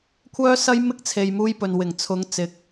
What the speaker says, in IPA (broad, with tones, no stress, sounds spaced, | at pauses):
kʷʰ œː˥ s ɐ˥ j m ɪ˥ k̚ t͡sʰ e˨ j m uː˥ j p ɵ˨ n w ɪ˨˩ ŋ t͡sʰ ʊ˨˧ ŋ t͡s ɪ˨ k̚